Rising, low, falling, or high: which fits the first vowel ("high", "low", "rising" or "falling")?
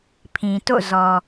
low